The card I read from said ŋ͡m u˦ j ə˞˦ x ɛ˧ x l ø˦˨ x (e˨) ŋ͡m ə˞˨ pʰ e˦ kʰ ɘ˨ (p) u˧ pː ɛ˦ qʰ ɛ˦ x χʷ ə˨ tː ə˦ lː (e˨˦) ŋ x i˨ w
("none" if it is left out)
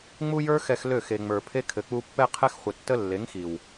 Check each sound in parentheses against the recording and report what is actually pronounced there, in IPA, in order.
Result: e˨, k͡p, e˨˦

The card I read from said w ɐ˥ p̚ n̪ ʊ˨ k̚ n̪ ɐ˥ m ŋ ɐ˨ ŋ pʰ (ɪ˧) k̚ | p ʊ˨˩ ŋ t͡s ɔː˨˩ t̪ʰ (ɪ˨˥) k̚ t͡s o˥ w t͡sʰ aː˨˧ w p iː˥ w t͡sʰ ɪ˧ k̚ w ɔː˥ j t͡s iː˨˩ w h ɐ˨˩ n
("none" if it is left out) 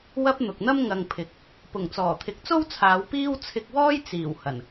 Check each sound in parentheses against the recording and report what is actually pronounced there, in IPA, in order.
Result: ɪ˨˥, ɪ˨˥

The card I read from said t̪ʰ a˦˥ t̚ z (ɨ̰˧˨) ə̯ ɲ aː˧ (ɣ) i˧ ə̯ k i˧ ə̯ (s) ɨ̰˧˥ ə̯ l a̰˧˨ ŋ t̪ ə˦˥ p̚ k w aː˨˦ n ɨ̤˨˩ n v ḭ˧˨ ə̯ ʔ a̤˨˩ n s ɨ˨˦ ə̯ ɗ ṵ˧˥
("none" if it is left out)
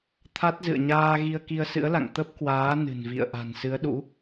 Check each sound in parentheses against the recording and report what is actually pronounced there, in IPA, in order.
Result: ɨ̰˧˨, ɣ, s

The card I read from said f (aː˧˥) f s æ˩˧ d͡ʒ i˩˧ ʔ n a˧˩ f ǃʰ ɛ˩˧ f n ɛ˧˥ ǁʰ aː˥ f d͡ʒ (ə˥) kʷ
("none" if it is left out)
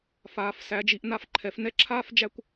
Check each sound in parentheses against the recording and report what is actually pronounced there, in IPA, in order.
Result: aː˩˧, æ˥

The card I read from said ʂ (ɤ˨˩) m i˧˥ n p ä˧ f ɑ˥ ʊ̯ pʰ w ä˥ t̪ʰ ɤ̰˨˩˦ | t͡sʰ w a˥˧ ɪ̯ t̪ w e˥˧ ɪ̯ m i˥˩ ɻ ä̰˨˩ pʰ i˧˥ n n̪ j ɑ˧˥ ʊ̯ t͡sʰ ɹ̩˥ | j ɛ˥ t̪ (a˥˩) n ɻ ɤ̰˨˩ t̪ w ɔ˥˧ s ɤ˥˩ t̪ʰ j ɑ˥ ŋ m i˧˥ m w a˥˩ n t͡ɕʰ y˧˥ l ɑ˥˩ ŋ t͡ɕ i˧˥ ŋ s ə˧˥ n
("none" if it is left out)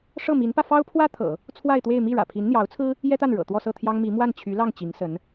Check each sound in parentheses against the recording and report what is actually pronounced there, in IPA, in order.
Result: ɤ˥˩, a˥˩

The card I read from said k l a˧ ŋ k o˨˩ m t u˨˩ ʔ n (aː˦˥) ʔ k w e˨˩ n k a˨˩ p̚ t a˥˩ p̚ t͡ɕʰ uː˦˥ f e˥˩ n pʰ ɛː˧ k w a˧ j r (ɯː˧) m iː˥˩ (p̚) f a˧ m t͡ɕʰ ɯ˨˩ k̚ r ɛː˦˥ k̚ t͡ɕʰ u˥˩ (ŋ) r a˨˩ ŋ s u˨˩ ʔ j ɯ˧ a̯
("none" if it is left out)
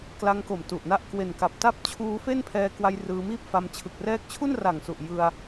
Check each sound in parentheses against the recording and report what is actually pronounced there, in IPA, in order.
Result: a˦˥, ɯː˧, p̚, n

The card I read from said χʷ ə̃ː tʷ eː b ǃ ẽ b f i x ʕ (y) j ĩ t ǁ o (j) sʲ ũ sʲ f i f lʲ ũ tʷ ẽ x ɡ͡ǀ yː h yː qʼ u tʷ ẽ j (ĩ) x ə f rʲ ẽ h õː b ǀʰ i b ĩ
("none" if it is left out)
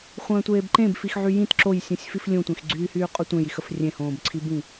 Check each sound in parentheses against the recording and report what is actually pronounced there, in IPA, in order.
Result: y, j, i

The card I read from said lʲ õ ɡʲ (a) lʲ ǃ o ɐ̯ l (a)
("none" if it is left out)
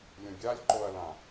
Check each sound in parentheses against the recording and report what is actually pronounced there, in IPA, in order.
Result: a, ã

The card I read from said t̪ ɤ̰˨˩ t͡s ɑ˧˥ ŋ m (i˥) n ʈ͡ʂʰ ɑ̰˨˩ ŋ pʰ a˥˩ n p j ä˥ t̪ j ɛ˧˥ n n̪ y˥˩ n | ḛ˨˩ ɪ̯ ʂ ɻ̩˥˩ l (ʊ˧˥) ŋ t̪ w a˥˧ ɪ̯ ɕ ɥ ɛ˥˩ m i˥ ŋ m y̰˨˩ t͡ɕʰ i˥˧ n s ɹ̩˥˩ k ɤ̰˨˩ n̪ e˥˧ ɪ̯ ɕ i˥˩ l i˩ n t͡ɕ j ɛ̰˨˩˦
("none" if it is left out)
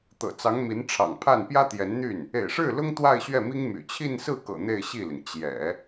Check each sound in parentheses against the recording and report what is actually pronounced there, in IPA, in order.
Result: i˧˥, ʊ˥

